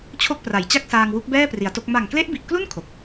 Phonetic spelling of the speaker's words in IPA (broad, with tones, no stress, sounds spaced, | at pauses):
t͡ɕʰ o˥˩ k̚ p r a˨˩ j t͡ɕ a˥˩ k̚ s aː˧ ŋ w u˦˥ k̚ b ɛː˥˩ p r i˩˦ a̯ t o˦˥ k̚ m a˨˩ ŋ k l e˦˥ ʔ b i˨˩ ʔ k l u˥˩ n kʰ o˨˩ k̚